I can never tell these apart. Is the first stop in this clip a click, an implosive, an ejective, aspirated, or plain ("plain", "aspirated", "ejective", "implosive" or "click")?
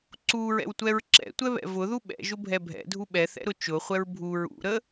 click